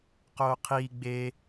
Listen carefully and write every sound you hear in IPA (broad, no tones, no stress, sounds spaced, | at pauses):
q oː qʰ iː ɡ͡b e